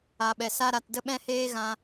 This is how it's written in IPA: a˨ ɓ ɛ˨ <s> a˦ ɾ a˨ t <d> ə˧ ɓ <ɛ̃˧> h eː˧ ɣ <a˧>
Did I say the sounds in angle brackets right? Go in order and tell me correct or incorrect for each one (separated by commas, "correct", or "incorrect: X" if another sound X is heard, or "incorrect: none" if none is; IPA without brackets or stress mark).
correct, correct, correct, incorrect: ã˧